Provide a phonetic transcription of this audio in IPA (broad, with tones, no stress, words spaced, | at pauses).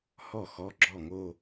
hɔ˥˩ xɔ˧˥˧ɡ͡ǁɔ˥˩ŋo˥˧